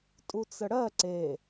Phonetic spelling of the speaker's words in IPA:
tʼut͡səɽɜ ǀe

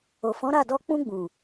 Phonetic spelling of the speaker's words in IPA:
o˨fɔ̃˨˦ɾa˦˨dɔ˧ k͡pũ˧ɡ͡bũ˨

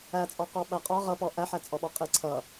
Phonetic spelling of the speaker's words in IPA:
æt͡sʼɔqɔ ɓæqʼɒ ʁʌpɔ ʔæħæt͡sʼɔɓɔ qʼiǀʰʌ

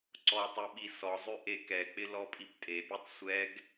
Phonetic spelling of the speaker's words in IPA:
ǀɔtˤɪɓi sɔzˤʉ ʔekɛk͡pɪ lɔpʼiptʼepʲʉtˤ sʷɛɡ

